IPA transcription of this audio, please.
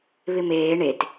βɪmeː ɳet

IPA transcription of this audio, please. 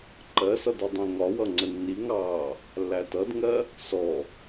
ǃɜsʌd ɒdˤĩŋɒwʌ ŋ͡ǀənːiŋɑː | lːætʌdŋɜ | sɔ

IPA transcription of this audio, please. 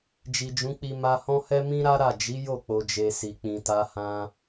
d͡ʒi˨d͡ʒũ˨˦k͡pi˧ ma˧ hɔ̃˦hɛ˦ mĩ˦ɾa˦ɾa˦˨ d͡ʒi˨˦jo˦˨k͡po˨d͡ʒe˨ si˨k͡pĩ˧ta˦ hã˧

